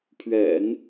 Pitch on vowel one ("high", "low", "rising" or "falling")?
low